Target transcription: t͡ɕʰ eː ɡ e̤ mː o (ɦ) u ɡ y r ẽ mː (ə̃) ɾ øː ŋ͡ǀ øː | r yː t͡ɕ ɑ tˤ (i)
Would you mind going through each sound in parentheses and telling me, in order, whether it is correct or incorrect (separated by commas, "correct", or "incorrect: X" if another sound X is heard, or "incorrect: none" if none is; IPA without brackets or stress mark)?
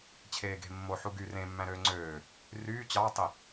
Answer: incorrect: ħ, incorrect: æ̃, correct